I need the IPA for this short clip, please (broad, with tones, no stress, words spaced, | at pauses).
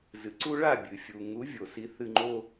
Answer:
zɨ˩ǀu˧ ɭa˥˩bʲɨ˩ fʲu˩ ŋu˩˥vʲo˩si˩˥ θɨ˧ ŋ͡ǃo˧